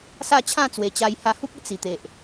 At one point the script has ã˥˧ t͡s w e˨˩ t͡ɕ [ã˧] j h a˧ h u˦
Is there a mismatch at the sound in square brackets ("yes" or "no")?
yes